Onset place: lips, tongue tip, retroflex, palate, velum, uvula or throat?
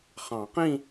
uvula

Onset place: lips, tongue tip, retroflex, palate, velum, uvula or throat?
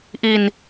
throat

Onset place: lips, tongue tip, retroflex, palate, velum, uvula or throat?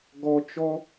velum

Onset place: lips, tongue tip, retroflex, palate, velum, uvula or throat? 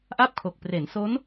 throat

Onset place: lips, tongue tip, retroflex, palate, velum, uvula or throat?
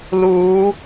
tongue tip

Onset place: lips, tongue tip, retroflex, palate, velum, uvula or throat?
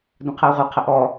tongue tip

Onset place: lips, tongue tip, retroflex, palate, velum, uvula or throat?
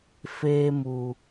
lips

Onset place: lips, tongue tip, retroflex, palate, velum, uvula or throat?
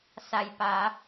tongue tip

